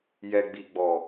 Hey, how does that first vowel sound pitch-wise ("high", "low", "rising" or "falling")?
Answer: low